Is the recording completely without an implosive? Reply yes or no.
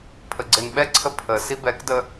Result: no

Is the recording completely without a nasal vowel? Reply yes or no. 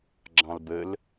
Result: no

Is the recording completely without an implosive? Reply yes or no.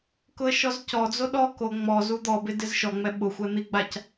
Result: no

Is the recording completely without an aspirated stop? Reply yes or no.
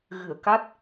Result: yes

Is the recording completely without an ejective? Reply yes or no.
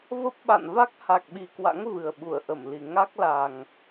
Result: yes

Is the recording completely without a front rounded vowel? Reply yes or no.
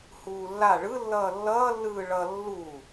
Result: yes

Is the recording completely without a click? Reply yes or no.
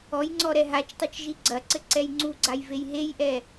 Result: no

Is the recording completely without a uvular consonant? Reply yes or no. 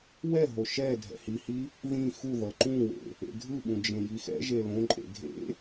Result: yes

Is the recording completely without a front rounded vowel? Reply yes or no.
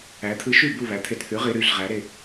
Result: no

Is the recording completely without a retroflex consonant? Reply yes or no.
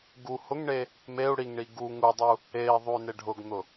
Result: no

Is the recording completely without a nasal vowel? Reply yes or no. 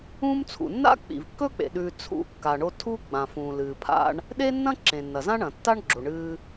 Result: no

